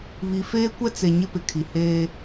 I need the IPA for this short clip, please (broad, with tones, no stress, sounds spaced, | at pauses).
β i˨ f eː˦ kʷ ɛ˦ t͡s e˨ ɲ ɪ˦ p ɪ˨ kʰ i˨ h eː˦